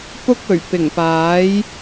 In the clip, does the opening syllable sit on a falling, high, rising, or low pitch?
high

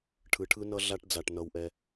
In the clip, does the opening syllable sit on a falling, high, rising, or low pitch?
low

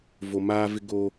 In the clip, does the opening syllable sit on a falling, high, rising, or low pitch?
low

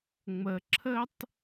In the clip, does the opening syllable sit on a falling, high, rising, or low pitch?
low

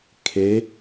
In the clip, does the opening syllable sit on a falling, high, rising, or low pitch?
rising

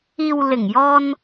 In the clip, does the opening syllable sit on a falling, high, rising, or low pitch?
low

